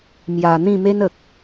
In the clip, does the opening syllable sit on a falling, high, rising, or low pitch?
low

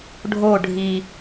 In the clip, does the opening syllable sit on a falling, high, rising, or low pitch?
falling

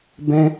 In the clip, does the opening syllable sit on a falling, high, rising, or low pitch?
high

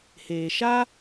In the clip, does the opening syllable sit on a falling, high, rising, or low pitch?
low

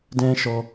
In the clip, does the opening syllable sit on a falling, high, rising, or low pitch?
high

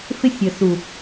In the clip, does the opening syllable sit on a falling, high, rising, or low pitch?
high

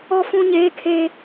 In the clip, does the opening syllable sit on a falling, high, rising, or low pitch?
high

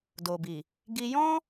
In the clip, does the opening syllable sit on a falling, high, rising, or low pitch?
low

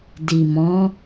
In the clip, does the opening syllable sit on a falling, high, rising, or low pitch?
low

